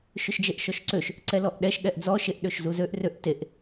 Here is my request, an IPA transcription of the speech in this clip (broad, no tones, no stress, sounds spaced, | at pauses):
ʃ ʏ ʃ d͡ʒ e ʔ ʃ ɔ ʃ ǀ ø ʃ | ǀ ɛ l ɔ ʔ ɗ ɛ ʃ ɠ ɛ ʔ d͡z ɔ ʃ e ʔ ɗ ø ʃ z u z ø ʔ r ø ʔ t e ʔ